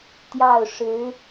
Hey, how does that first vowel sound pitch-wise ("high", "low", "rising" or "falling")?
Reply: falling